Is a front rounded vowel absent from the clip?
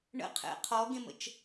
yes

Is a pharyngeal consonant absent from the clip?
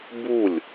yes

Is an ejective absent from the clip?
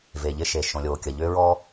yes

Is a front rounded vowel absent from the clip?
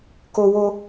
yes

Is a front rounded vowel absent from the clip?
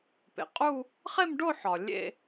yes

